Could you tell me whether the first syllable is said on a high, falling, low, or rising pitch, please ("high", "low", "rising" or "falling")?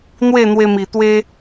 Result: falling